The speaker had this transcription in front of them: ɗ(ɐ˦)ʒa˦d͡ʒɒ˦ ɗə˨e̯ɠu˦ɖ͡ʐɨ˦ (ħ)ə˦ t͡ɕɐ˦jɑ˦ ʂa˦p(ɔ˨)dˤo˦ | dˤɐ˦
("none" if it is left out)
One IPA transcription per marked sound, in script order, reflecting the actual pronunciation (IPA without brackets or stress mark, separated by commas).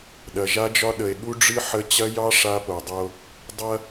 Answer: ɐ˨, ħ, o˨